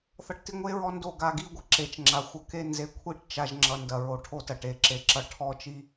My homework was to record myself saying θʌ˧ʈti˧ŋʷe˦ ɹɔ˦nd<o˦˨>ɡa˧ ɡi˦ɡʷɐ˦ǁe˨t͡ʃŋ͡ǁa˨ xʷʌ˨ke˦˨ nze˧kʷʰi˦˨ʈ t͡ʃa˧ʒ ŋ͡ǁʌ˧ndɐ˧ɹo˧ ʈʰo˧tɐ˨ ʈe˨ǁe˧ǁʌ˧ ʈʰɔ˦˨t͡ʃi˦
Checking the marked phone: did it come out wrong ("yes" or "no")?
no